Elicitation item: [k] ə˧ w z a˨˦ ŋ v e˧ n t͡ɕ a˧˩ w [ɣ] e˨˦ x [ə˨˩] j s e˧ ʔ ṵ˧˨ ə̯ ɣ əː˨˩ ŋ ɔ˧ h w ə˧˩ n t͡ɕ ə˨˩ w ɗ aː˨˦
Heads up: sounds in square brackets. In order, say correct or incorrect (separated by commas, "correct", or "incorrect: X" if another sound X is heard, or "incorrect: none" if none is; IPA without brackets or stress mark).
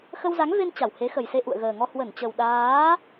incorrect: x, incorrect: h, correct